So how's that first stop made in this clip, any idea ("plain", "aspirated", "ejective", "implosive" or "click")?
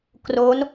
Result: plain